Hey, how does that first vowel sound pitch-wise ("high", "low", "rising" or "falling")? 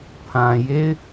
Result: low